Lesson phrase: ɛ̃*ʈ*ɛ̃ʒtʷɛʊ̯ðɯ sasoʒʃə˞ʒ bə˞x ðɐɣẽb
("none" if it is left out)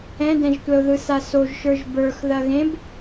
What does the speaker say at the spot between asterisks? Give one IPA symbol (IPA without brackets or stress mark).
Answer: d